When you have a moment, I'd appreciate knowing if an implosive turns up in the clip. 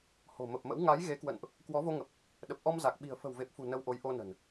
yes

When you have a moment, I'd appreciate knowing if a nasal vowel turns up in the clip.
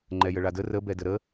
no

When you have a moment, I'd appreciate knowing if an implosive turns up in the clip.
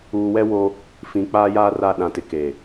yes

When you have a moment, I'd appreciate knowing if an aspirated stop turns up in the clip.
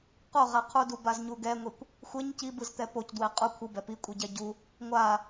yes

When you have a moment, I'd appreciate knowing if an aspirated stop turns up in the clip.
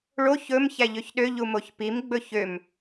no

